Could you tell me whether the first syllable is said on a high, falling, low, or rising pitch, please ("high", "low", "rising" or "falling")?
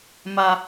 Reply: high